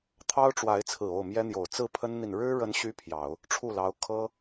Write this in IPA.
t̪ʰ ɑ˥ ʊ̯ ʈ͡ʂ w a˧˥ ɪ̯ t͡sʰ ɹ̩˨˩ o˥˩ ʊ̯ m j ɛ˥ n̪ j o˨˩ ʊ̯ t͡s ɹ̩˥˩ pʰ ə˥ n n̪ i˨ n ɻ ɻ̩˥ ɻ ə˧˥ n ɕ y˧˥ pʰ j ɑ˨˩˦ ʊ̯ | ʈ͡ʂʰ u˥˩ l ɑ˧˥ ʊ̯ kʰ ɤ˥

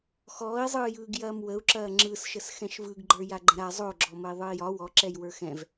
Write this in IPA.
x ɔː i̯ zˤ ɯː j ɯː ɡ j ɐː m w ə u̯ ǁ ɐː ŋ͡ǁ ɯ s ʃ ə s x ɛ̃ ʃ v ɯ ɡ ɡ͡ǃ ə˞ j a ɡ͡ǃ ə̃ ɾ a zˤ o ɡ͡ǁ ɔ m ə i̯ ðˤ ɯ i̯ j ɒ w ɔ ǁ ɛ j w ə˞ x ɛ̃ v

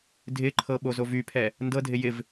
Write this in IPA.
dʱ ɪ ǃʰ ɤ ɓ o z o v y pʰ ɛ | n d ɤ dʱ ɪ j ɪ v

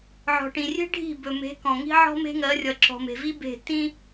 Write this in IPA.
ʕ ɔ̤˨ ʈ ĩ˨ rʲ e̤˦ ɖʱ i̤˦˨ b ɵ˨ m e̤˨˦ k ɔ̃˨ ŋ i̤˦ ʕ ɔ̤˦ m e̤˦ ŋ ɜ˨˦ rʲ ʌ˨ ǁ ɔ̤˨ m e̤˨ v i˦ b e̤˦˨ t ĩ˦

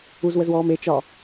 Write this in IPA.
u z w ə z w ɔː m e t͡ʃ ɒ

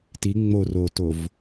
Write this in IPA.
t i ŋ͡m o r o t o v

